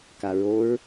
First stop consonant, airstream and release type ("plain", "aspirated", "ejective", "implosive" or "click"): plain